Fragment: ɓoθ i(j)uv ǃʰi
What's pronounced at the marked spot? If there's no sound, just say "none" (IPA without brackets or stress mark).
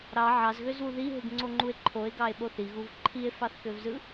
ɣ